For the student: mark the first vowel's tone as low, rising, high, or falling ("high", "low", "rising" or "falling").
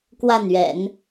falling